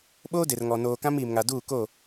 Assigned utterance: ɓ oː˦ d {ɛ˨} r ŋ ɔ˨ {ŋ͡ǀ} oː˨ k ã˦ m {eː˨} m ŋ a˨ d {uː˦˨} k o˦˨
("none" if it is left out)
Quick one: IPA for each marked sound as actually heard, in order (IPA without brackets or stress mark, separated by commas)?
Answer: e˨, n, iː˨, uː˦˨